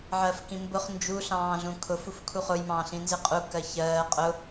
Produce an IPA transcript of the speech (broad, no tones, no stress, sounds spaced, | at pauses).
ʕ ɜ f k ĩ m b ʊ χ n d͡ʒ u ɬ ɑ̃ː ɮ ũ kʰ ʊ f u f kʰ u χ ʊ j m ɑ̃ː ɬ ĩ n z ɪ qʼ u k ɜ ç ɜː qʼ ʊ